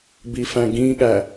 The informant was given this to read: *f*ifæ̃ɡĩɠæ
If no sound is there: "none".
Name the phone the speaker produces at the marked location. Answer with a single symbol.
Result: b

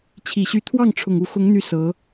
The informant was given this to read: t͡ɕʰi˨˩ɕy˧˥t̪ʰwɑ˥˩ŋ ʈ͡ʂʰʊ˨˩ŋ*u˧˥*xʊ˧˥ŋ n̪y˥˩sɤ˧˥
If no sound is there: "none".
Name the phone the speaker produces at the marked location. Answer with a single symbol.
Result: u˧˥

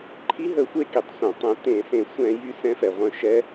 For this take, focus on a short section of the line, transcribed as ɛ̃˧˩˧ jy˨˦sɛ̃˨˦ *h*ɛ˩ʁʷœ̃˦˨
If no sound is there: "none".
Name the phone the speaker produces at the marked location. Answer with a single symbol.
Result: f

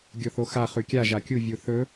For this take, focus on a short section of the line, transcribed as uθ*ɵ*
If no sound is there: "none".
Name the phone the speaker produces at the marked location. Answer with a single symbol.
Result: ɵ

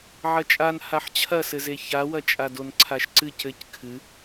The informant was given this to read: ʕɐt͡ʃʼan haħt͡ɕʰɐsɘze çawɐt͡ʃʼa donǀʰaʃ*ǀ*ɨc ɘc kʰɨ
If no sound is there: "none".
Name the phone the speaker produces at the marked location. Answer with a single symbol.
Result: ǀ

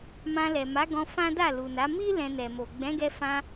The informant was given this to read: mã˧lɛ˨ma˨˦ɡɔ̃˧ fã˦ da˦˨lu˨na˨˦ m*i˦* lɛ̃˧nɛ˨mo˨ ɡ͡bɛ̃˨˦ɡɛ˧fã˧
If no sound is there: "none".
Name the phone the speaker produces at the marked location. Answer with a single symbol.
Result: i˦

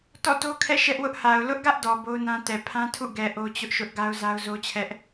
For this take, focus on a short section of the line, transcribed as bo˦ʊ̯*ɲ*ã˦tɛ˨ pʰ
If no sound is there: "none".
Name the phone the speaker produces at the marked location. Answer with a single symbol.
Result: n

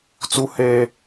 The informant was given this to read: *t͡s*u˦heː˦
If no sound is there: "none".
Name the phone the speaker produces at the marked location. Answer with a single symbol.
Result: t͡s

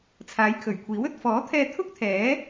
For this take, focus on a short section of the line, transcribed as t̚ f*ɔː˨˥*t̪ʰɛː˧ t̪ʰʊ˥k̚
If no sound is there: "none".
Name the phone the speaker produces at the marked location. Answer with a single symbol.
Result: ɔː˨˥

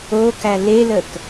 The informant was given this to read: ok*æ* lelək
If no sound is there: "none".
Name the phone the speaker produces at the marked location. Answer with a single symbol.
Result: æ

